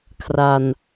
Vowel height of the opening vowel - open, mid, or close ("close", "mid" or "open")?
open